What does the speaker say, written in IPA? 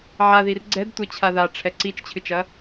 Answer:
ʕaðir ɡ͡ǀɛdtʷɛt͡ɕʰa ðaʈ͡ʂʰɛ ǀit͡ʃt͡ɕʰɨt͡ʃɐ

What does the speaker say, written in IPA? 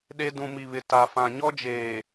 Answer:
ɗe˦ dũ˨mi˨βɪ˨ ta˨fã˨ ɲɔ˦d͡ʒeː˨

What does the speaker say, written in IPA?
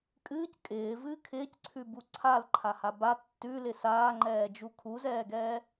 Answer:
kʼɨːc kʼɪːvɨː kʰɪːcǀʰʉbu ǀʰalǃʰaha ba tːʉlɪ saːŋ͡ǃɛːd͡ʒu kʰuzɛːɡɛː

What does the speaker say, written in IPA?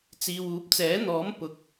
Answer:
t͡siː˨w uː˨˥p̚t͡sɛː˨˥n̪ɔː˨˥m pʊ˨˥k̚

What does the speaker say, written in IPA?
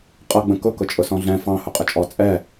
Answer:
qʼʌɡ͡bə̃ kʊ kʊt͡ʃʼʊsɔ̃ɮɛ̃ fɑ̃hʊ qʼət͡ʃʼɔ t͡sʼɛ

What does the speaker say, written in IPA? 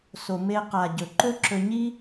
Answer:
so˨me˧qa˨ ɟɵ˨ǃɵ˦ǁɵ˧ɲi˦

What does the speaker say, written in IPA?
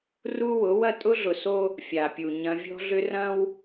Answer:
ru˦ wʊ˨˦wɐ˦ tʼʊ˦ɮʊ˨so˦ | fʲa˨pʲu˨ ɲɐ̃˦ vʲɔ̤˦ɮʏ˦rɐ̃˦w

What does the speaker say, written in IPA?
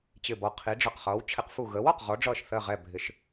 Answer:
t͡ɕɪ˧˩bɔ˧˩ qʰi˨˥ɖ͡ʐʌ˧˩qχʌː˨˥w t͡ɕʰɪ˨˥qfu˧˩ ɣəː˨˥wɒ˧˩q ʁɔ˨˥ɖ͡ʐʌː˧˩ʃθɜ˧˩ʁɛ˧˩ bʱɪ˨˥ʃ

